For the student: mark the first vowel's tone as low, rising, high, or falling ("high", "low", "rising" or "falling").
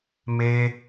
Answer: high